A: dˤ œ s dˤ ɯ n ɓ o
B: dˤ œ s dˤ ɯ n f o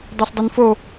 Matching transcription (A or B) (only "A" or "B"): B